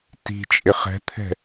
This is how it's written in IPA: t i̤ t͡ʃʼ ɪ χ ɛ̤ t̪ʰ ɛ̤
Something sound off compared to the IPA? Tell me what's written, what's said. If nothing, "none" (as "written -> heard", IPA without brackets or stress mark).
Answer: none